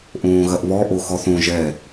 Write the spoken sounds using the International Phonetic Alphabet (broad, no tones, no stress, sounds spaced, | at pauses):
ʔ õː ɣ ɐ ʔ β ɔ ʔ o x ɔ θ õ ʒ ɛ